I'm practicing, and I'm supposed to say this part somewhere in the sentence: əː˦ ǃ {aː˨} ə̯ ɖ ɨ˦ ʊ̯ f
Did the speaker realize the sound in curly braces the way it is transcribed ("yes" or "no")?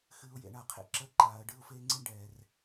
yes